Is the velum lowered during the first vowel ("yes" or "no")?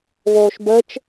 no